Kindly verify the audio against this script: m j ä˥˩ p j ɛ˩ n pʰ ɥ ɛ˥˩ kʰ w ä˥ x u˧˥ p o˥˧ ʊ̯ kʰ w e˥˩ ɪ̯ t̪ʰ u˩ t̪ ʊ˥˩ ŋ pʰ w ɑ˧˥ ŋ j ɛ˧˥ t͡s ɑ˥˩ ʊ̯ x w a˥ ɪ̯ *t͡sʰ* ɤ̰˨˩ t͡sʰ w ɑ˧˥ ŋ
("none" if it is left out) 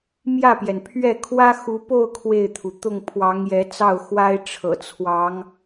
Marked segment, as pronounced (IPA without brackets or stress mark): ʈ͡ʂʰ